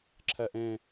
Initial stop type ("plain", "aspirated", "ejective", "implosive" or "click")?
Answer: click